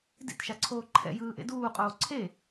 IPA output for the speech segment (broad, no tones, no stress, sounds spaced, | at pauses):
d ḭ t ʃ a ǀʰ oː ǃʰ ɛ̰ j ɯː ʔ ḛ d uː qʼ oː ǀʰ e